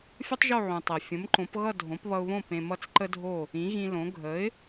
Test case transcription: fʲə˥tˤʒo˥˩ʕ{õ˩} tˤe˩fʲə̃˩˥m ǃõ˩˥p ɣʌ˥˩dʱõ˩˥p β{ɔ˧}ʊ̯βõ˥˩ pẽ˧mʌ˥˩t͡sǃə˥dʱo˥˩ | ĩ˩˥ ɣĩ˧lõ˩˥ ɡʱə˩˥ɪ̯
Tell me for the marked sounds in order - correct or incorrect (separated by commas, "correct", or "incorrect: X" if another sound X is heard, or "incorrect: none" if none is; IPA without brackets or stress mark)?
incorrect: ũ˩, incorrect: ʌ˧